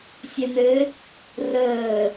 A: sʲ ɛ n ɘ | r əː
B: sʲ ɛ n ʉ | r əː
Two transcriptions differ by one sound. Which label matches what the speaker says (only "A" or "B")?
A